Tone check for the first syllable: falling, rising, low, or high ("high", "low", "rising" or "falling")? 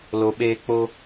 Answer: low